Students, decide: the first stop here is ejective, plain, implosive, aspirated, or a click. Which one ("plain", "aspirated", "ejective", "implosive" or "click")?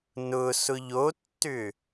plain